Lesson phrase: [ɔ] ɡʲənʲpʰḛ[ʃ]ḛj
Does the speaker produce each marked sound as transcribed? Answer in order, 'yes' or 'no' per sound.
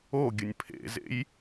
no, no

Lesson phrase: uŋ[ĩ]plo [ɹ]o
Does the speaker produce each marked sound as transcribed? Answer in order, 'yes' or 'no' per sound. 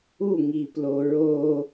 no, yes

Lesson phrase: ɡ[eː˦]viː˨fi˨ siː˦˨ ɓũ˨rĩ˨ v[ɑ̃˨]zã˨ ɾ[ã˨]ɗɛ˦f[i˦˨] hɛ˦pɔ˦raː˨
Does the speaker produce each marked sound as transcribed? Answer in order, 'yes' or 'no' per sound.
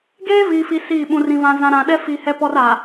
yes, no, yes, no

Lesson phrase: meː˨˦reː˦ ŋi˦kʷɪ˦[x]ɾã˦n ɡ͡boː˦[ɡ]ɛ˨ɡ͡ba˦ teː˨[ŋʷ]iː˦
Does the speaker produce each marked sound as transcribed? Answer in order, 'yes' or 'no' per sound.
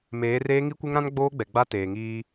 no, no, no

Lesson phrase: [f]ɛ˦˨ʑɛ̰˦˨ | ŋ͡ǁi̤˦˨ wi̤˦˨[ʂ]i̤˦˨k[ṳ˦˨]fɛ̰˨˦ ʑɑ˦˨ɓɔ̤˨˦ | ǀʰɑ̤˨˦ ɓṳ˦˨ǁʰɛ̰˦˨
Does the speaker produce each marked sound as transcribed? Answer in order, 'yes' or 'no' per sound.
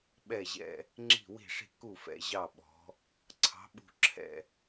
no, yes, no

